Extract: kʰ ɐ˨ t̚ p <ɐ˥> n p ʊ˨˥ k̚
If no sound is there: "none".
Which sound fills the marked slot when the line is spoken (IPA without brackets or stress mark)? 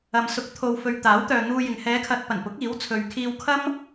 ɐ˨˩